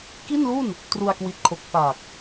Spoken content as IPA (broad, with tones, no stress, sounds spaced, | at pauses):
k i˥˩ n l u˥˩ n | t r u˧ a̯ k w i˨˩ t̚ kʰ o˨˩ k̚ f a˨˩ k̚